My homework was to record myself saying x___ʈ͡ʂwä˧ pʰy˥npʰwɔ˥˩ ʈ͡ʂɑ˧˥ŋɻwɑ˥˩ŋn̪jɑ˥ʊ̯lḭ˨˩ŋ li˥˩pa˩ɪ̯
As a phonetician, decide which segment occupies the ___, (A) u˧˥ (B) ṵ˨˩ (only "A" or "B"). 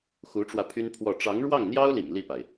A